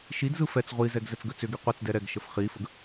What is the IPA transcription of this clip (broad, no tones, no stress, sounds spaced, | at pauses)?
ʃ i d z ɯ f ɛ t͡s ʁʷ i z ɛ ɡ z ɛ t͡s ɡ ə t͡s ʏ ɡ i qʷ ɛ t͡s d ɛ ɾ ɛ ɡ ʃ ə f χ i f ə ɡ